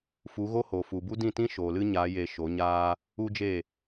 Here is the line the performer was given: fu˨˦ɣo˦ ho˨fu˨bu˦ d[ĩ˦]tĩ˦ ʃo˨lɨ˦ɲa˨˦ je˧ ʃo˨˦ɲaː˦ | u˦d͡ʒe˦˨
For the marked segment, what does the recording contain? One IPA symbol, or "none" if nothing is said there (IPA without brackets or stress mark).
ĩ˦˨